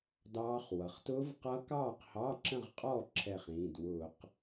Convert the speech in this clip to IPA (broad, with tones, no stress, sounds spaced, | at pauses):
d ɑː˦˥ χ w ʌ˩˧˩ χ t ʊː˦˥ v q ʌː˦˥ k ɑː˥˨ q h ɑ˧˥˧ ǁ ə̃˥˨ ʁ qʼ ɔ˥˨ ǁʰ ɛ˥˨ χ ĩː˩˧˩ d w ʊː˧˩˧ q